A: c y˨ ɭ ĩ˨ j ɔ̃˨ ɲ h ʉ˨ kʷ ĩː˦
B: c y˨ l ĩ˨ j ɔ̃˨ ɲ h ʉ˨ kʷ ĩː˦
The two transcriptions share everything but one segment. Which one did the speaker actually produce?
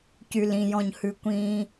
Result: B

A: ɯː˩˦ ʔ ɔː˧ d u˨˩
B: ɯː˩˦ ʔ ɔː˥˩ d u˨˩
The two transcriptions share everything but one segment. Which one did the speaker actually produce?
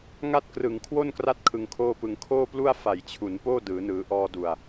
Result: A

